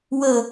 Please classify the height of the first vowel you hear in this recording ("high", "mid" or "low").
mid